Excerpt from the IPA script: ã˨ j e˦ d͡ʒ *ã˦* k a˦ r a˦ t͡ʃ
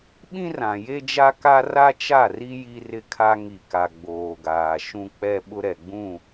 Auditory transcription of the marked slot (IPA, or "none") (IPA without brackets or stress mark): a˦